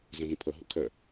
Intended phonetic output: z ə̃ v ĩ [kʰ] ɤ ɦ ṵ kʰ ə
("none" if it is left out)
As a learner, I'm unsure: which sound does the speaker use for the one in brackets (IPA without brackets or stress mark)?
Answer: pʰ